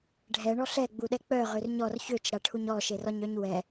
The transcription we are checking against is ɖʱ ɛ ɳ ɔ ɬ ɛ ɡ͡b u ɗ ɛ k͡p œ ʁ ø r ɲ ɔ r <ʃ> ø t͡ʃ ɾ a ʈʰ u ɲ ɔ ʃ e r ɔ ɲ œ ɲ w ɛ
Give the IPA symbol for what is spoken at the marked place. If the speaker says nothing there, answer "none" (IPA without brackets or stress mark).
ç